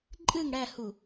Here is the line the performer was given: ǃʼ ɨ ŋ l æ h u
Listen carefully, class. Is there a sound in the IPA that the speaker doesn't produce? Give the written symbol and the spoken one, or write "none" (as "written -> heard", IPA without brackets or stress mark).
l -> ɽ